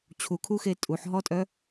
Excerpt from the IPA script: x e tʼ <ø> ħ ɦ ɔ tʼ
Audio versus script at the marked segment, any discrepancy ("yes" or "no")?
yes